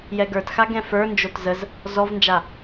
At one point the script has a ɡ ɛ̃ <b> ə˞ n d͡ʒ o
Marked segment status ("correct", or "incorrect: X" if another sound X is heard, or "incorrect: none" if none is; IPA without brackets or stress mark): incorrect: f